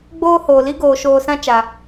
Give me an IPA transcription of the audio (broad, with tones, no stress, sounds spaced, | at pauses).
ɡ͡b oː˦ h oː˨ l i˦ ɡ oː˨ ʃ oː˧ s ã˦ t͡ʃ a˨